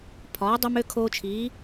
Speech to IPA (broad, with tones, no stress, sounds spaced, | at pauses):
pʰ ɒː˩˥ dˤ ø˧ m ø˧ kʰ oː˧ t͡ʃʰ iː˩˥